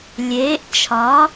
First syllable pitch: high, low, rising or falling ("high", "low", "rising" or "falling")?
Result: rising